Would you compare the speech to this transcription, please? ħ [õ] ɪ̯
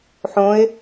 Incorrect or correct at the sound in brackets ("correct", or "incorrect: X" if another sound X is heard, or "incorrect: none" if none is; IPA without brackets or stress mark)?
correct